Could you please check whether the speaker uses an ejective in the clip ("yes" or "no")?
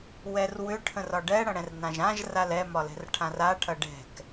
no